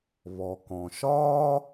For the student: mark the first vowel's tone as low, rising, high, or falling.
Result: low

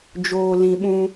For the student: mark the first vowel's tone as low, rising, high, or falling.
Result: low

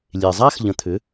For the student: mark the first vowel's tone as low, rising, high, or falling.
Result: low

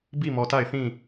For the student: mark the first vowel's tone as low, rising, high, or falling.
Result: falling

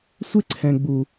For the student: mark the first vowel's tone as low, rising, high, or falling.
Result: high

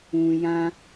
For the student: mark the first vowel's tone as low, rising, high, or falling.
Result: low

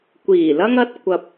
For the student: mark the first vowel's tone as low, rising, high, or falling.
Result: low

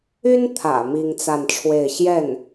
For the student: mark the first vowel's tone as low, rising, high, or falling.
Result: high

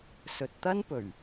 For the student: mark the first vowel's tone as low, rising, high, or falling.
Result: low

